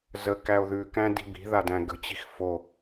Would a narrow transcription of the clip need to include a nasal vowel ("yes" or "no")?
yes